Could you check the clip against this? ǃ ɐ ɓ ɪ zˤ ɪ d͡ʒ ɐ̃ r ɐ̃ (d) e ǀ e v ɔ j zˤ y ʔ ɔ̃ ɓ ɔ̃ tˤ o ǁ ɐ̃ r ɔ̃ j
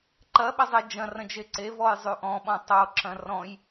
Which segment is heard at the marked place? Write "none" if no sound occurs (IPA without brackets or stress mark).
d͡ʒ